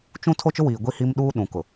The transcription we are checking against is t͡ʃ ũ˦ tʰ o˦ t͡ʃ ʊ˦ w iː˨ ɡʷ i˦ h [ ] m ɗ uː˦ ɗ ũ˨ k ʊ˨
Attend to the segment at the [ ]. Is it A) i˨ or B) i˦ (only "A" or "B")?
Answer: B